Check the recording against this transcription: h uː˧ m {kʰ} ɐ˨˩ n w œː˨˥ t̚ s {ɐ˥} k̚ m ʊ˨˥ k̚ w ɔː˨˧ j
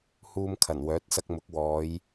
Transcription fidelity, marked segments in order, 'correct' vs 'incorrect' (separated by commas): correct, incorrect